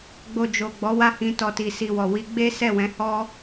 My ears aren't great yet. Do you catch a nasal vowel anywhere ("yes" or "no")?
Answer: yes